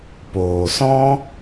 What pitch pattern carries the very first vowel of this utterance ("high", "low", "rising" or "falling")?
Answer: low